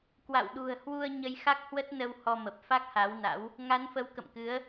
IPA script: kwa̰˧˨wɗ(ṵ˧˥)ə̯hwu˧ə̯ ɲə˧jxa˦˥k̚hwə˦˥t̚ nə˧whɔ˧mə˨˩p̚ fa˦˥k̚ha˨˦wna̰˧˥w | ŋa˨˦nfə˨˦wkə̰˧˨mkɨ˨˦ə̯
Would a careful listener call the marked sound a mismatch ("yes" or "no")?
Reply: yes